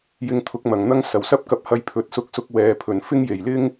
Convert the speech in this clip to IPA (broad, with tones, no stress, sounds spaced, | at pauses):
j ɪ˧ ŋ t̪ʰ ʊ˨˥ k̚ m ɐ˨˩ ŋ n̪ ɐ˥ ŋ s ɐ˨˩ w s ɐ˥ p̚ k ɐ˧ p̚ h ɐ˧ j pʰ ɵ˨ t̚ s ʊ˧ k̚ s ʊ˧ k̚ w ɛː˨ pʰ ɵ˨˩ n f ɪ˥ ŋ j e˨˩ j l ɪ˥ ŋ